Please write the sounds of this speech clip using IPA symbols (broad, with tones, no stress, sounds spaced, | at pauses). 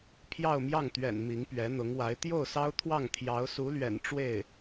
pʰ j ɑ˥˧ ʊ̯ m j ɑ˥˩ ŋ t̪ ɥ ɛ̰˨˩ n m i˧˥ ŋ p ɥ ɛ˧˥ n̪ ʊ˧˥ ŋ w a˧˥ ɪ̯ t̪ j o˥˩ ʊ̯ s ɑ˥ ʊ̯ t̪ʰ w ɑ˥˩ ŋ t̪ʰ j ɑ˧˥ ʊ̯ s u˧˥ l ɥ ɛ̰˨˩ n ʈ͡ʂ w e˥˩ ɪ̯